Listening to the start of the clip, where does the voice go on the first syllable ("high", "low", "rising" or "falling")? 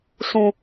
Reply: high